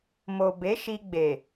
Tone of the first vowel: low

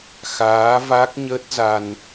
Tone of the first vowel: rising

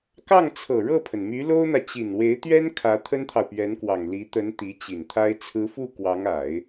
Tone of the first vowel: falling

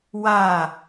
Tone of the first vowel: falling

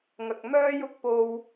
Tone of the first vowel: low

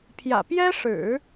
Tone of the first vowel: low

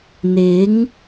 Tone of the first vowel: rising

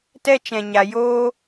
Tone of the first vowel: high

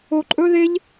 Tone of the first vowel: high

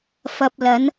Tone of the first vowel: low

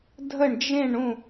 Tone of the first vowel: falling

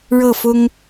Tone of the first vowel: falling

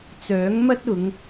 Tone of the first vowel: rising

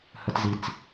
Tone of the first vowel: high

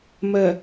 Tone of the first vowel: low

